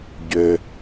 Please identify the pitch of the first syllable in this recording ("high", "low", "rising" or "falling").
low